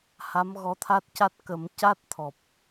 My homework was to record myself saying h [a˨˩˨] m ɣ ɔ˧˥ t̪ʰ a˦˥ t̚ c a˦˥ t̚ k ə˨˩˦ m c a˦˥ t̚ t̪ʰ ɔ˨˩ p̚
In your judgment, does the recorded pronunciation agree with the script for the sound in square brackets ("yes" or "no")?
no